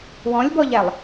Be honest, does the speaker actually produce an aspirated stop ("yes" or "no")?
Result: no